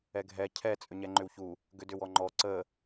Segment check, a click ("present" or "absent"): present